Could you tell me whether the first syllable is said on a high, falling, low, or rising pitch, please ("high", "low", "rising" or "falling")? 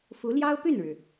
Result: rising